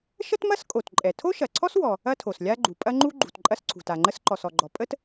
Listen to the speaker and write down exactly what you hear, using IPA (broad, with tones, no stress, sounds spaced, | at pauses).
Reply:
ʃ ə˥ t m ɐ˥ s kʼ o˩ t ǃʼ ɛ˩ tʰ o˥ ʃ ɐ˩ ǀʰ ɔ˥ s w ɔ˩ | ɐ˥ tʰ o˩ s lʲ a˥ ɡ͡ǃ u˩ pʼ ɐ˥ ŋ͡ǃ u˥ ɡ͡ǃ ṳ˩ t ǃʼ ɐ˥ s ǀʰ ṳ˩ t a˩ ŋ͡ǃ ə˥ s ǃ ɔ˩ s ɔ˩ ɡ͡ǃ ɔ˩ pʼ ə˥ t